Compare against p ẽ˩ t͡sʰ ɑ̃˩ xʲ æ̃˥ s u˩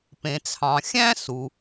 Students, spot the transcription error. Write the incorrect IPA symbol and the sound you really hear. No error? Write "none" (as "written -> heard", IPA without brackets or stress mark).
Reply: none